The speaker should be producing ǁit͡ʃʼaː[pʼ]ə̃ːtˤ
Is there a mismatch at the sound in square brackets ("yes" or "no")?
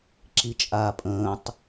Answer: no